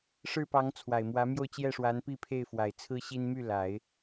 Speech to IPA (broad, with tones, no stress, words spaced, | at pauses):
ʂɻ̩˥˩pɑ˧˥ŋ t͡sʰwa˨˩ɪ̯mwä˧˥mjo˥˧ʊ̯ t͡ɕjɛ˥˩ʂwa˧˥npi˥˧pʰe˥˩ɪ̯ fwa˨˩ɪ̯t͡sʰɹ̩˥ɕi˥n my˥˩la˨˩˦ɪ̯